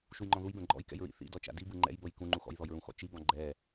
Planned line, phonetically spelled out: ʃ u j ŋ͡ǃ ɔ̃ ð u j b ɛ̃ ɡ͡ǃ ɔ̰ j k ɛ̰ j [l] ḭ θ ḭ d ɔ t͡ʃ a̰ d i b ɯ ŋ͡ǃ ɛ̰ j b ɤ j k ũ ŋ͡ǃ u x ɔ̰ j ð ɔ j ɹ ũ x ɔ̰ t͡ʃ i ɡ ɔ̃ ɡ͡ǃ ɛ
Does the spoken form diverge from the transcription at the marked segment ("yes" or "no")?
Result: yes